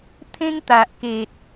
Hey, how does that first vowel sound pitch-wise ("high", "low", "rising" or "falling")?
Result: high